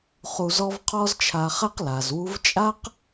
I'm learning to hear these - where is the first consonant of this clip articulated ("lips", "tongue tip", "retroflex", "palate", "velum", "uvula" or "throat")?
uvula